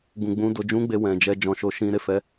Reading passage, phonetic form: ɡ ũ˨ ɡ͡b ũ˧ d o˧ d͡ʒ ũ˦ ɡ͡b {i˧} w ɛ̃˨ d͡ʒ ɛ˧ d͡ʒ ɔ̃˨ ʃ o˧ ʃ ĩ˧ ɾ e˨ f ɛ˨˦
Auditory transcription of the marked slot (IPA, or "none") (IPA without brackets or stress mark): e˧